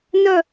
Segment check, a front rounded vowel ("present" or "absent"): present